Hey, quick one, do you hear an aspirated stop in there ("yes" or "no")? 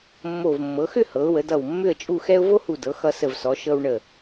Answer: no